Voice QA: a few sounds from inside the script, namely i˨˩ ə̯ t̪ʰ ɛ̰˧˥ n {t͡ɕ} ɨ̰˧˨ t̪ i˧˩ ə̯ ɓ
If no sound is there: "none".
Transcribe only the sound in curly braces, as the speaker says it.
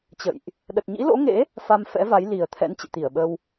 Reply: t͡ɕ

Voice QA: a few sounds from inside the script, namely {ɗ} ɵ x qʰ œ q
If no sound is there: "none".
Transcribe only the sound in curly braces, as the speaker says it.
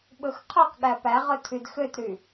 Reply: ɓ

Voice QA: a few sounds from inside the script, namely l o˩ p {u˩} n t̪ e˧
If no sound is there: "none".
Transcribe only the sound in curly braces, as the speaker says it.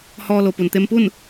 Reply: u˩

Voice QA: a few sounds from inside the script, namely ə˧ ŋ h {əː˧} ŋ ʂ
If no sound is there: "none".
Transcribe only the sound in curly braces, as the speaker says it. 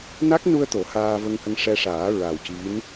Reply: ə˧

